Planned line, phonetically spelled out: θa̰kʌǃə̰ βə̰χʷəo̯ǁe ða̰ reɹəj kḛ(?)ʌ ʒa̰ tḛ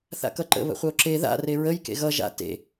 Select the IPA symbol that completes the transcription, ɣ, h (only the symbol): ɣ